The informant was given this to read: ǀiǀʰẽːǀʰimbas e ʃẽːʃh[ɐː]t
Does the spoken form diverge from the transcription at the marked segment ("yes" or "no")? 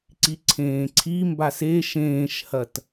yes